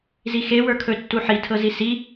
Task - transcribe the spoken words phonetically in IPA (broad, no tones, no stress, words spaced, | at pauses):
zixe wə˞kʰɵ tːuħi tʰɤzisi